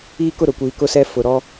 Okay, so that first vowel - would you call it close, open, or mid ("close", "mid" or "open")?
close